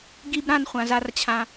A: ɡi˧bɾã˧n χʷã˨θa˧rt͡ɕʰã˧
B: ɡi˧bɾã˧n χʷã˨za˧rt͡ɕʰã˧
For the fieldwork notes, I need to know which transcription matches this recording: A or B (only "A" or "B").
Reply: B